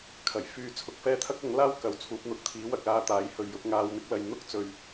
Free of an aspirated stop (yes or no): no